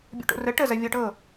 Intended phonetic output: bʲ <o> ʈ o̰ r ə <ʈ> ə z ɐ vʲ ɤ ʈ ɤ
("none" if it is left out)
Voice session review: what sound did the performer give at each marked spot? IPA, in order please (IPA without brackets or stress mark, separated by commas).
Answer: o̰, ʈ